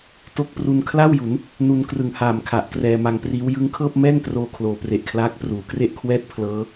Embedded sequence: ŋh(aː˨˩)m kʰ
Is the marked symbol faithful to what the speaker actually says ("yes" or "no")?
yes